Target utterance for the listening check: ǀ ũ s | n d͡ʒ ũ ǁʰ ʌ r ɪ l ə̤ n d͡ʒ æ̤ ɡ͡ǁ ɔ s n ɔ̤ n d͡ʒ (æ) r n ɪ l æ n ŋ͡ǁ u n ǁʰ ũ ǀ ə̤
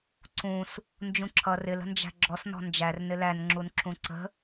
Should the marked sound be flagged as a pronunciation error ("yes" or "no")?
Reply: no